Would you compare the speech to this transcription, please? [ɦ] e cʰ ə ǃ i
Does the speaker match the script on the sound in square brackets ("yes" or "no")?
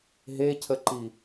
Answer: yes